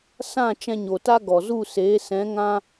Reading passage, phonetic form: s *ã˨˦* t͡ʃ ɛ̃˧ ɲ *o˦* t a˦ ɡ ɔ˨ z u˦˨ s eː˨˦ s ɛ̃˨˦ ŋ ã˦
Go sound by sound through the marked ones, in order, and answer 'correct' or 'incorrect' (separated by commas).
incorrect, incorrect